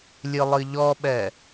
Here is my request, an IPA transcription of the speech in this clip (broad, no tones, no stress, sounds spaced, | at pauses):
lʲ ɨ lˠ ɨ ʎ ɔ ɓ ɛ